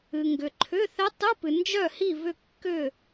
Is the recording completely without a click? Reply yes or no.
no